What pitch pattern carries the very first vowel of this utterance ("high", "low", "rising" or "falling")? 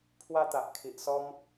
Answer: high